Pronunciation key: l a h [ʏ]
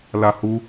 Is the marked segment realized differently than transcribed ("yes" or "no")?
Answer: yes